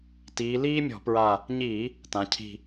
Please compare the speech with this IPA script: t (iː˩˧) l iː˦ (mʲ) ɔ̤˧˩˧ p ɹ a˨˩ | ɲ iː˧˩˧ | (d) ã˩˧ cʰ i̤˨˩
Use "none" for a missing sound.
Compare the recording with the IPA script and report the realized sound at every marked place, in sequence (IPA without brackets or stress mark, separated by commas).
iː˩˧, mʲ, t